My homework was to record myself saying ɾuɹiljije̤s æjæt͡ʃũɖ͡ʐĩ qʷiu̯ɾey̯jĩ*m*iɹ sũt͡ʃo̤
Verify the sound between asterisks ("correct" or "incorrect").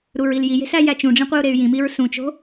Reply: correct